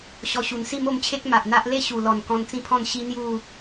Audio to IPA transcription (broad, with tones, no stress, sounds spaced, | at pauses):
ɕ ɔ˧ ɕ u˨˩ n s i˥˧ m o˥˧ m t͡ɕʰ e˦ k̚ m a˨ ʔ n̪ a˦ ʔ l e˥˧ ɕ u˨˩ l ɔ˨˩ n k ɔ̃˧ n t͡s ĩ˥˧ pʰ ɔ̃˥˧ n ɕ i˦ n̪ j u˥˧